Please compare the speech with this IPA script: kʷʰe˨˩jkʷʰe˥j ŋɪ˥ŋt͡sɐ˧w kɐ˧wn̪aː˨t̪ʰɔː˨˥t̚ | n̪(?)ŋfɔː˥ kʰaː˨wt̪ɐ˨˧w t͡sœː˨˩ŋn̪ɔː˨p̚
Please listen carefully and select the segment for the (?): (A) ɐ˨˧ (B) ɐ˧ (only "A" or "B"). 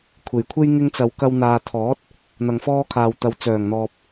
B